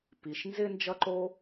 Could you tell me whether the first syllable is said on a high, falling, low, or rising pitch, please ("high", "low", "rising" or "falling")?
low